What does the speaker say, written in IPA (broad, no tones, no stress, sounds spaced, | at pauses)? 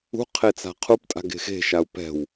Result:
ṳ qʰ e t͡s a̤ qʰ u p tʼ a̤ ɡ e̤ x e̤ ʃ a u̯ p ɛ̤ w